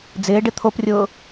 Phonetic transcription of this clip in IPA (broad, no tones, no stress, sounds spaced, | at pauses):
d͡z ɪː ɖ ɪ t̪ʰ o p rʲ ʊː